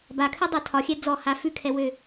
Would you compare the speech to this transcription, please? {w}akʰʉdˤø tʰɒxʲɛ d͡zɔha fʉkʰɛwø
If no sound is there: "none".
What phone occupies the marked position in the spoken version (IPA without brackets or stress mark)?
b